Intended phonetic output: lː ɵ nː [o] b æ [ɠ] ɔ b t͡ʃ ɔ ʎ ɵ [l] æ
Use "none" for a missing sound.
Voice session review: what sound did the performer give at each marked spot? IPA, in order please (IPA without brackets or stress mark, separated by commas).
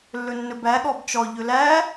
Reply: ɵ, ɠ, l